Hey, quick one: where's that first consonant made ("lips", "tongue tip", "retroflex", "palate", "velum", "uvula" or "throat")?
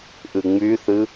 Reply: throat